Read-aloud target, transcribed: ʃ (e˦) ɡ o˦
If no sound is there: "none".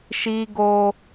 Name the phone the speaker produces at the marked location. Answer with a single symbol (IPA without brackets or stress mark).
i˦